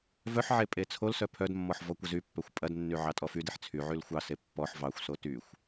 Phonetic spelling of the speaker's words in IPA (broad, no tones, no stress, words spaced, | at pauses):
vœħʕe pʼet͡sʰolsœ pʰœdmːɔħ vɔkʷəzypːœxʷ pʼɐdnːy ʕɑtʼɔfydeħ t͡sʰyʕyl xʷɑse pːɔħ vɑxʷso tyxʷ